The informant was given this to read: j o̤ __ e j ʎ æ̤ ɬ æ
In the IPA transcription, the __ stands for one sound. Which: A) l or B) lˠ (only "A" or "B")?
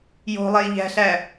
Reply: B